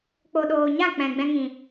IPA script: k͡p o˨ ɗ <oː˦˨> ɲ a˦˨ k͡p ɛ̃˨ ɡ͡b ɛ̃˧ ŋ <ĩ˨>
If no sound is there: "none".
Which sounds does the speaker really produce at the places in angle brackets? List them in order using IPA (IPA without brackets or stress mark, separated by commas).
oː˨, ĩ˨